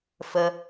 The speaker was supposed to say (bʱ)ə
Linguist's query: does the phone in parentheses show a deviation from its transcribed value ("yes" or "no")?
yes